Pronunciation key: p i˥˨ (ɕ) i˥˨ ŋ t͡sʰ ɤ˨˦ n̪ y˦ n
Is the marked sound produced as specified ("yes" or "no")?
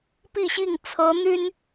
yes